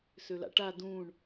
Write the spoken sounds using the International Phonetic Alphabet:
søla̰ʈa dũːɳ

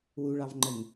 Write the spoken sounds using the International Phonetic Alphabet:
wuɭɑvŋ͡ǃəŋ

